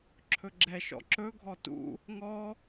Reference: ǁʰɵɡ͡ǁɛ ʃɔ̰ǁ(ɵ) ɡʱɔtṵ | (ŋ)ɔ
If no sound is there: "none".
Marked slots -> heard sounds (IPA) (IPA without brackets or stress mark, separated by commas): ɵ, ŋ